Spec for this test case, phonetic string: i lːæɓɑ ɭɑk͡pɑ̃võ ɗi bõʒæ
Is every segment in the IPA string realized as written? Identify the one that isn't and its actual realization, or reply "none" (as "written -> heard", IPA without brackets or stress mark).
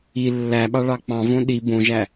none